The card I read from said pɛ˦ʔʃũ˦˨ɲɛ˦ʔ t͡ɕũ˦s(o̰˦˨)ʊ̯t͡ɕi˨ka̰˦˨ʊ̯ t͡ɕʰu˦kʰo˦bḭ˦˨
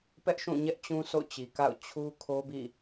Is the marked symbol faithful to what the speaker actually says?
yes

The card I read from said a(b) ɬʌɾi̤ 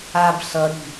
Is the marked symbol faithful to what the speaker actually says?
yes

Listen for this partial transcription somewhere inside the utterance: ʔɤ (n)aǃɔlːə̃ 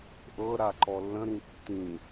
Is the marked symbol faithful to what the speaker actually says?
no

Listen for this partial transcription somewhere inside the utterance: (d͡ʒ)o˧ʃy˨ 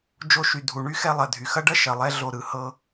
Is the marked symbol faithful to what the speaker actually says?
yes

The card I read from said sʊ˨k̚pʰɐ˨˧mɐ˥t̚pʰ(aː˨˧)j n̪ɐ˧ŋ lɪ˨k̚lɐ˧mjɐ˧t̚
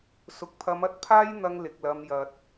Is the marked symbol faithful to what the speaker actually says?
no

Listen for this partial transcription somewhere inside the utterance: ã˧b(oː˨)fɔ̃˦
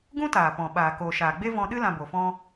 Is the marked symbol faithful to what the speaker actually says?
no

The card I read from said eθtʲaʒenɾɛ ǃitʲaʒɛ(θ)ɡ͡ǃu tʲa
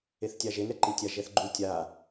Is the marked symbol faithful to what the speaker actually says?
yes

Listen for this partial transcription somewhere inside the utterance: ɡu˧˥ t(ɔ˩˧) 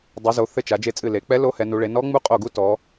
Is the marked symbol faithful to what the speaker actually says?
yes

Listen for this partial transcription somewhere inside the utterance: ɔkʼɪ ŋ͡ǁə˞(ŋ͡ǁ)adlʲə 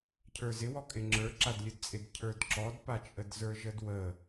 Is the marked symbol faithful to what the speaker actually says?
no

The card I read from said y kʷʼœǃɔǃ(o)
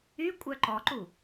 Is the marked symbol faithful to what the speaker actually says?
no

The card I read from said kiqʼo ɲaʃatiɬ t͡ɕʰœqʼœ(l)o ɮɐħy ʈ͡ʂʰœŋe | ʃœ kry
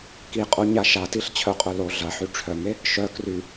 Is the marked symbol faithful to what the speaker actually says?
yes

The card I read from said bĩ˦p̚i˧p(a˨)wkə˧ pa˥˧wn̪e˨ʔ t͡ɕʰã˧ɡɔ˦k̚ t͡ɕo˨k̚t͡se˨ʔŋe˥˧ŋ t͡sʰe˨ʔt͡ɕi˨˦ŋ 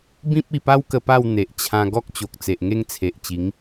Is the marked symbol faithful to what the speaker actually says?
no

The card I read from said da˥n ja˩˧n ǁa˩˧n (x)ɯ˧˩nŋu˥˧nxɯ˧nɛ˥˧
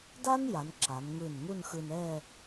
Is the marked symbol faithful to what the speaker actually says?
no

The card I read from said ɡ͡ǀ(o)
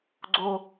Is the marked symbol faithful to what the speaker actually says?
yes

